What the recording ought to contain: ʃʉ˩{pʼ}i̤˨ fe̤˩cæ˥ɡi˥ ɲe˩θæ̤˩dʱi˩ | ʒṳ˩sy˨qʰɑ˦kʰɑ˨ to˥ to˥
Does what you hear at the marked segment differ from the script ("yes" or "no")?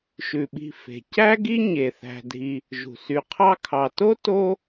yes